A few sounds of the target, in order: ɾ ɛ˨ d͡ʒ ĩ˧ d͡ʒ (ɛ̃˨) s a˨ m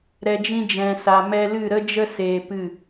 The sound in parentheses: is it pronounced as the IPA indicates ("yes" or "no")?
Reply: yes